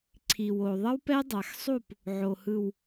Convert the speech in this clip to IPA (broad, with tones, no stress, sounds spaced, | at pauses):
ǀʰ i˨ w o˨ ðˤ ʌ˦ w p ɛ˦ dˤ a˨ x sˤ u˦˨ p | ʕ o˨ h ɯ˨ w